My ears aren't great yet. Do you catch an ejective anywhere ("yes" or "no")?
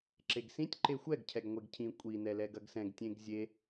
yes